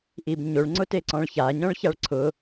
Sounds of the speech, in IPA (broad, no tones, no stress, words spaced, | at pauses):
ʔibɲoɭ ŋ͡ǀʊteǀɔ̃ɭça ɲɔ̃ɭçaɭǀʰʊ